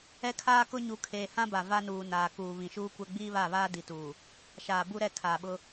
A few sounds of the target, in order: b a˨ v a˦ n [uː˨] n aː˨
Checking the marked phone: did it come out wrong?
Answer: no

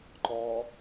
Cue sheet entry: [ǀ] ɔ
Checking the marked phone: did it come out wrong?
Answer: yes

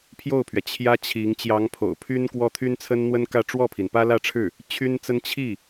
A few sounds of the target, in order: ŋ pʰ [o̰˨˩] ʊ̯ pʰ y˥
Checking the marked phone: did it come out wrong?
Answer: no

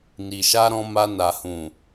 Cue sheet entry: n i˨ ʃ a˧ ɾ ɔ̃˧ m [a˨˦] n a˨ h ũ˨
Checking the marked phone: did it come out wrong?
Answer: yes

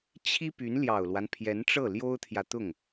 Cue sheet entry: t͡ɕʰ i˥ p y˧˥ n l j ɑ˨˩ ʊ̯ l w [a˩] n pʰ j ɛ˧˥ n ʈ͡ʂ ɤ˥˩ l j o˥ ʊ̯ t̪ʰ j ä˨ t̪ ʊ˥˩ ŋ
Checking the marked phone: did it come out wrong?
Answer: yes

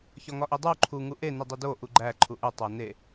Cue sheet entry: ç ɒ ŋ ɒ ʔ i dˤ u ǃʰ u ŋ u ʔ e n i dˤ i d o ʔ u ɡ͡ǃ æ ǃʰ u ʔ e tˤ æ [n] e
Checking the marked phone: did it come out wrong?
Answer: no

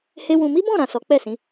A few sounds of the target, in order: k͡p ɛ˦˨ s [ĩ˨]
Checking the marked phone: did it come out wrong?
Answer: yes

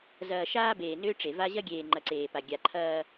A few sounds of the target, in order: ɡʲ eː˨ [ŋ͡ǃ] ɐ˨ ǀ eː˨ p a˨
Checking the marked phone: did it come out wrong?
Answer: no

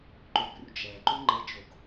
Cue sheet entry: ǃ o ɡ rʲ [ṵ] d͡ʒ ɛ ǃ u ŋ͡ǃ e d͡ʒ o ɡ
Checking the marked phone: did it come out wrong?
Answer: no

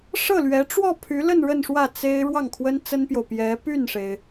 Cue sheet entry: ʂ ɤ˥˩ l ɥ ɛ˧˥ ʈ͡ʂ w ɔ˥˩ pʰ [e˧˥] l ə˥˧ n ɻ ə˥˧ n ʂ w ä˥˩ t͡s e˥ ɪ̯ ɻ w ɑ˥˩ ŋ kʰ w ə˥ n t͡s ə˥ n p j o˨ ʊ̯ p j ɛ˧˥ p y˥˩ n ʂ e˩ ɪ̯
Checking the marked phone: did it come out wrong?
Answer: yes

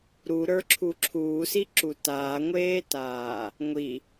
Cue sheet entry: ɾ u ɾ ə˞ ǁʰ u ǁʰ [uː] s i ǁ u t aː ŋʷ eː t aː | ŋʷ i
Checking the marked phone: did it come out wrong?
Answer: no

